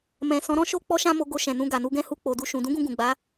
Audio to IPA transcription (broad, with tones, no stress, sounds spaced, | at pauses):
m ɛ̃˨ s ɔ̃˨˦ ɾ ɔ̃˦ ʃ o˧ k͡p ɔ˦ ʃ ã˦ m o˧ ɡ o˧ ʃ ɛ̃˨ n ũ˧ ɡ a˨ n u˧ ɡ ɛ̃˦ h u˧ k͡p o˨ d u˧ ʃ ũ˨ d ũ˨˦ ɡ ũ˧ ɡ ũ˨ ɡ͡b a˨˦